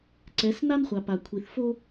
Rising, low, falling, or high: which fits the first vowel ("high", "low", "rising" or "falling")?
rising